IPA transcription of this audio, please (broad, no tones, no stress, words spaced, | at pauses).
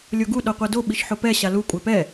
lʲoɡu ɗoqʷɛdo ɓiʃħopɛ ɕalu kʷʼɛpɛ